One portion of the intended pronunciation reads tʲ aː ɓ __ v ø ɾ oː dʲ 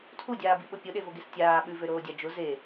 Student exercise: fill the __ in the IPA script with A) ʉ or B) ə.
A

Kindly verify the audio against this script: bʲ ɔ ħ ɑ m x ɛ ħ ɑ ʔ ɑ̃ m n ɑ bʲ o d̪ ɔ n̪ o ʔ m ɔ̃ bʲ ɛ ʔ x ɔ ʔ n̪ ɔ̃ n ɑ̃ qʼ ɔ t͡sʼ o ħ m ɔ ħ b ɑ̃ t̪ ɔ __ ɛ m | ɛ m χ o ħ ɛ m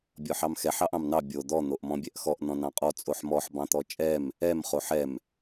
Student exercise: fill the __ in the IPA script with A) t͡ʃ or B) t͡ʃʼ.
B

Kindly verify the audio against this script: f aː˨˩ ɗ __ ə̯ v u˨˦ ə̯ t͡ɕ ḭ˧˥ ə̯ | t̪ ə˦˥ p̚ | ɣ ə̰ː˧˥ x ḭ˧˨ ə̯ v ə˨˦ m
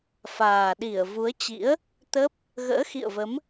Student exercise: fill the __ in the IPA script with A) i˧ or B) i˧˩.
B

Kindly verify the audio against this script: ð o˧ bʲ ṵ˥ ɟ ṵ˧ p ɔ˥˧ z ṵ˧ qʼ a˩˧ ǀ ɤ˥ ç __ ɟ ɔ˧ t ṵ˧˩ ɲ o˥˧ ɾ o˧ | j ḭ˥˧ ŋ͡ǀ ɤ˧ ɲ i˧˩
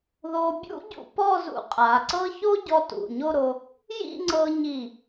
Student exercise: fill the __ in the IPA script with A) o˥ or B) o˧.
A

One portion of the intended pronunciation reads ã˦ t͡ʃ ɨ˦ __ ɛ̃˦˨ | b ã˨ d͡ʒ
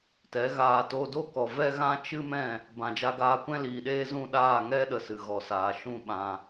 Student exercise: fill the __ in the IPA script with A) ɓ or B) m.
B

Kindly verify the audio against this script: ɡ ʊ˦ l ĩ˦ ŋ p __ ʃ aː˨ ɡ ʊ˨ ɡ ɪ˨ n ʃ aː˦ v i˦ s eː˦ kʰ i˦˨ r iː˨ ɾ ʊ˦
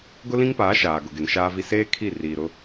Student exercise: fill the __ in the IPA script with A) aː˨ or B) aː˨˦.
B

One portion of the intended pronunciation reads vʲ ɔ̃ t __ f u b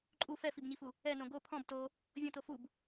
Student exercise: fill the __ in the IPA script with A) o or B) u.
A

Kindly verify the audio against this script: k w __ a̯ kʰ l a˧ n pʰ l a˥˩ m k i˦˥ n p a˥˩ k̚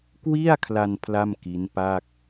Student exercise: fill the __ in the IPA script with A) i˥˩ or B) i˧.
A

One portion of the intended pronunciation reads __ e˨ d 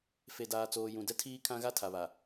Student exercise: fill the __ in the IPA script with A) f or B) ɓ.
A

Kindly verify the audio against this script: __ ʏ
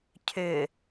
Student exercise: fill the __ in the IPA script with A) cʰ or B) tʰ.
A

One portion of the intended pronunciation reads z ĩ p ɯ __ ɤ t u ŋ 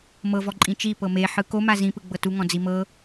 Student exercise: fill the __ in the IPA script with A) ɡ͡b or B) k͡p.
A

